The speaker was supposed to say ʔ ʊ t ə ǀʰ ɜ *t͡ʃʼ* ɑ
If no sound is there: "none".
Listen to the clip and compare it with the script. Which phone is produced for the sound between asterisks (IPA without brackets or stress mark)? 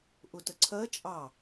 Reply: t͡ʃʼ